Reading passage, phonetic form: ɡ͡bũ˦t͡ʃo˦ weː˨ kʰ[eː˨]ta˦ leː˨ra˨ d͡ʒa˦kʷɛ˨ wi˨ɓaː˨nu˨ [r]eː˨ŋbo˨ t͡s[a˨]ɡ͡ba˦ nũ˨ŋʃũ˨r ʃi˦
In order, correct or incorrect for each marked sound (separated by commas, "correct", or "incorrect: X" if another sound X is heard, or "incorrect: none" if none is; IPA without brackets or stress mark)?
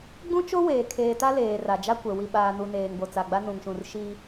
correct, incorrect: n, correct